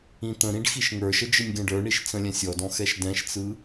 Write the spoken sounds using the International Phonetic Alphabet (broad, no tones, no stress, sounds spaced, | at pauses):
ĩ t̪ ə̃ ɾ ĩ ɖ x i ʃ ŋ ə˞ ʃ ə d͡ʒ ɯ nʲ ɡ ɛ̃ ɖ ə˞ ɳ i ʃ t͡s ə̃ lʲ ɛ̃ sʲ ɔ d ɔ̃ x ɛ ʃ d ɛ̃ ʃ t͡s ɯ